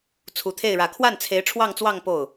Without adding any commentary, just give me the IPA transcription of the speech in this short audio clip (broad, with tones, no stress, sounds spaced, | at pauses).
t͡sʰ u˨˩ t̪ʰ e˥˩ ɪ̯ ɻ ä˨˩ kʰ w a˥˩ n t͡sʰ e˧˥ ɪ̯ ʈ͡ʂʰ w ɑ˥˧ ŋ t͡s w ɑ˥˧ ŋ p o˥˩ ʊ̯